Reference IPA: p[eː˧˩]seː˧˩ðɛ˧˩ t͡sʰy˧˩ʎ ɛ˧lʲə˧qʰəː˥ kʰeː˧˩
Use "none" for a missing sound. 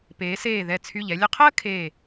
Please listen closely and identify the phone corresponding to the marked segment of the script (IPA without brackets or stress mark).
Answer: eː˩˧